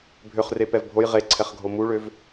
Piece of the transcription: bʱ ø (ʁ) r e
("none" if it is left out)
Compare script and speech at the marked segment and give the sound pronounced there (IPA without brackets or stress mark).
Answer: χ